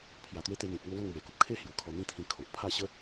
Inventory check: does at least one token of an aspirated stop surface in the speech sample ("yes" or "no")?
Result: yes